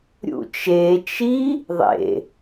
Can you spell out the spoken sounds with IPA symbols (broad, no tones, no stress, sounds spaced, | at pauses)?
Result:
ɾʲ ṵ t͡ʃ e t͡ʃ i | ðˤ ḛ